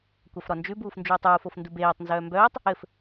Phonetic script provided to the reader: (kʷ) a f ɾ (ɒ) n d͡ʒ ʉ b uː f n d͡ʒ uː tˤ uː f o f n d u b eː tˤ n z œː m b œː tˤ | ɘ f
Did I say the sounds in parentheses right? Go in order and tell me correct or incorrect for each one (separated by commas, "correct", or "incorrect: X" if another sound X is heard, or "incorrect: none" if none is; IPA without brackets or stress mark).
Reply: correct, correct